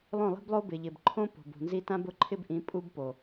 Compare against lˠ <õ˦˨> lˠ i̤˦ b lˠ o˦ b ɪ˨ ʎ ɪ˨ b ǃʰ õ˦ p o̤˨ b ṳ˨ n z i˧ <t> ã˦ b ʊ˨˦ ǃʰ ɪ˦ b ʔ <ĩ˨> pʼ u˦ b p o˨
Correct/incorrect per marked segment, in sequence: correct, correct, incorrect

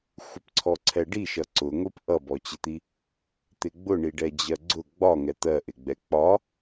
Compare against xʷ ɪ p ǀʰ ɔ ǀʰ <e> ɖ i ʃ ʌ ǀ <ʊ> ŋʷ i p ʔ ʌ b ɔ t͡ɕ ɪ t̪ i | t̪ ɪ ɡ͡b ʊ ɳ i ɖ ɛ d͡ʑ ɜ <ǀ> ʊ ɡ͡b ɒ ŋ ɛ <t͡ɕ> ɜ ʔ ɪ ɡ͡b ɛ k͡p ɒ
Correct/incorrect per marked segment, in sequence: incorrect, correct, incorrect, incorrect

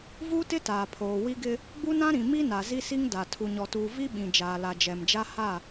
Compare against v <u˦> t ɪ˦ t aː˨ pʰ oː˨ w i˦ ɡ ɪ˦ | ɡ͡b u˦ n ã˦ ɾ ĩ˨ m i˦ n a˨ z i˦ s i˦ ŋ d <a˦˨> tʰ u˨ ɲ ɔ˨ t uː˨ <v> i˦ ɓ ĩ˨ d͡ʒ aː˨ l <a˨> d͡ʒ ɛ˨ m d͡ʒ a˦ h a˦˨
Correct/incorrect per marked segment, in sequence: correct, incorrect, correct, correct

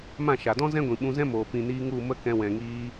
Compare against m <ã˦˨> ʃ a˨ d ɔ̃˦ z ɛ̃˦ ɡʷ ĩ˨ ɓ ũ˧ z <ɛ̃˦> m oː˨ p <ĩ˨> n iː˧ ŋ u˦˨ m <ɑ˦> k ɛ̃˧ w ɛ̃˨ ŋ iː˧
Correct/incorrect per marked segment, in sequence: correct, correct, correct, incorrect

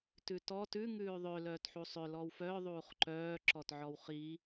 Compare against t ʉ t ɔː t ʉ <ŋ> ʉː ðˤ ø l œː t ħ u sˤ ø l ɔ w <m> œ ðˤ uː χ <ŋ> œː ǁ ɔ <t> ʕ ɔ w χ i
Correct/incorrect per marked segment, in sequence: correct, incorrect, incorrect, correct

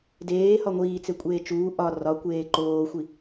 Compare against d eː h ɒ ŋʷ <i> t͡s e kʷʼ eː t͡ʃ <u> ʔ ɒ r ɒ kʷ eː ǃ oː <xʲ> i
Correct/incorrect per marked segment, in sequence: incorrect, incorrect, incorrect

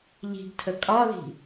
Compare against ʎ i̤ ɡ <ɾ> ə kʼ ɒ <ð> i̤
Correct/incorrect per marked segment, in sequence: incorrect, correct

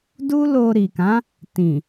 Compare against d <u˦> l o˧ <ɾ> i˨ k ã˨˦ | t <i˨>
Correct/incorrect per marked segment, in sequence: correct, correct, incorrect

